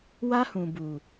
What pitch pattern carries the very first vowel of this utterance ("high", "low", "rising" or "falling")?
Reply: high